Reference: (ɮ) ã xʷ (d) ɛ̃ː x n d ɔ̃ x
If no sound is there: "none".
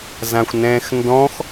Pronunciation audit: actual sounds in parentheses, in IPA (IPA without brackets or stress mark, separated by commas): z, n